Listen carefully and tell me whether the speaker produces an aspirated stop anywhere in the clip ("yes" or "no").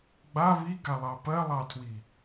yes